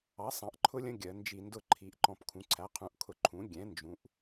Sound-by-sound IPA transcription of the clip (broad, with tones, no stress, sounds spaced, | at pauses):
ɑ˩˥ sˤ ɑ̃˩˧ ʔ ǃʰ ʊ˦ lʲ ə̃˦ ɡʲ ɜ˩˧ n d͡ʒ i˧˩˧ n d ʊ˦ ǃʰ i˩˥ ʔ ǃ ɔ̃˧˩˧ p kʰ ũ˩˥ ǀʰ æ˩˥ qʰ ũ˩˥ ʔ kʰ ʊ˧˩˧ ǃʰ ũ˩˥ ɡʲ ɛ̃˩˥ n d͡ʒ ũ˩˧ ʔ